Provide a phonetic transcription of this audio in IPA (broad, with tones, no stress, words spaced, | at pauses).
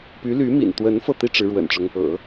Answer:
py˧˥ly˧˥ mḭ˨˩n t̪wə˧˥n fɤ˥˩t̪i˥ ʈ͡ʂɻ̩˧˥ɻwə̰˨˩nʈ͡ʂʊ˦ŋ | ɤ̰˨˩˦